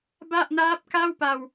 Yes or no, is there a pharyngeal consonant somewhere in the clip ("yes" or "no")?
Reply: no